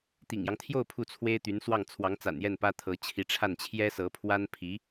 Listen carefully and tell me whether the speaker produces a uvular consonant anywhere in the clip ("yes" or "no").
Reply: no